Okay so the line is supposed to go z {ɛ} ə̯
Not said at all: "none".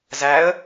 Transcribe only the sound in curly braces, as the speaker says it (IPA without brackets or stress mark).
æ